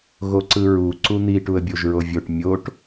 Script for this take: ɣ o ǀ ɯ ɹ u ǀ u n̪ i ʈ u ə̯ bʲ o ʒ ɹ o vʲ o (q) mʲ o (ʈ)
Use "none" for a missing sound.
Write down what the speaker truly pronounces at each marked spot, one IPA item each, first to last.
ʈ, ʈ

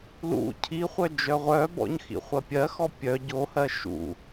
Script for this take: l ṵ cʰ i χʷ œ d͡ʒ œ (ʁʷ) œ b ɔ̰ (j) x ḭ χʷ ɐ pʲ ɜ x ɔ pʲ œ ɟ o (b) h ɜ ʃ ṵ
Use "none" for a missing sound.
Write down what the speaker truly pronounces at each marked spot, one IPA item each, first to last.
ʁʷ, ɲ, none

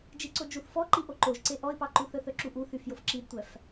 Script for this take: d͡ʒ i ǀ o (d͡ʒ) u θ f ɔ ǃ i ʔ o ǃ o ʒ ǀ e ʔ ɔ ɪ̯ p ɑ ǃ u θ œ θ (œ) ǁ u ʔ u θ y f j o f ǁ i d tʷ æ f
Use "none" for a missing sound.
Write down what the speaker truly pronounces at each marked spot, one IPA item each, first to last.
d͡ʒ, œ

